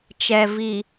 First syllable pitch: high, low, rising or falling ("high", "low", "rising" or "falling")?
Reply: low